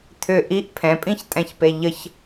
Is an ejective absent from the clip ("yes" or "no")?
no